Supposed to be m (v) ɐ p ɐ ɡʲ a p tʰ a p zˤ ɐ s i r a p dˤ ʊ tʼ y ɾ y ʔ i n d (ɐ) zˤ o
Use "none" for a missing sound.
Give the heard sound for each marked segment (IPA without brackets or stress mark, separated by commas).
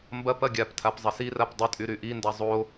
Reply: b, a